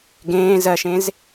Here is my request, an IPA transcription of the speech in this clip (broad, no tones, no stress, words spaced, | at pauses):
ɡẽː zɜʃẽz